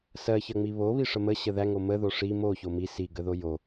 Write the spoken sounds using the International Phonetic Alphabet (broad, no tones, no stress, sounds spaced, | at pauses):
s ɜ ç ɜ ŋ͡m i β o β i ʂ ə m ə ɕ ə ð æ ŋ o m ə ð o ʂ i m o ç o m i s i ɡ ə ð o j o